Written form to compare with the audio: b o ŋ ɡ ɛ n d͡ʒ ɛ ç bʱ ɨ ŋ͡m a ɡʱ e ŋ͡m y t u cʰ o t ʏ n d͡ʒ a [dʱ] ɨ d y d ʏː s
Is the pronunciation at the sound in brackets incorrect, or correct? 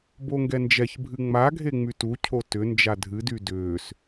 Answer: correct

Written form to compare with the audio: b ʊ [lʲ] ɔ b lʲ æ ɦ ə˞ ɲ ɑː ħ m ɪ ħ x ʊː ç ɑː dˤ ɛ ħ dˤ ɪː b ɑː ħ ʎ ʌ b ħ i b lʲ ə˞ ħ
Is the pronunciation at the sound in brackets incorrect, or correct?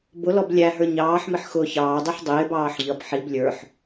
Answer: incorrect: l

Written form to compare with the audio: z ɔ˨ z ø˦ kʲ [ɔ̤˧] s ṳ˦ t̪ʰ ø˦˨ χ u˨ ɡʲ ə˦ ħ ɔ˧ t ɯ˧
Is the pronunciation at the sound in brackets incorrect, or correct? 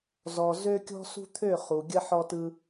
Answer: incorrect: ɔ̤˦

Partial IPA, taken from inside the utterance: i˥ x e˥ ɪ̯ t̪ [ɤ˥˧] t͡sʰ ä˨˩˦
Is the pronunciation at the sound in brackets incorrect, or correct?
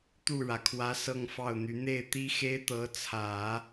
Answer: incorrect: ɤ˧˥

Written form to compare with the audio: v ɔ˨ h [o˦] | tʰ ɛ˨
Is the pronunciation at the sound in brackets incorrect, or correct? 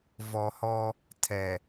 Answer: incorrect: ɔ˦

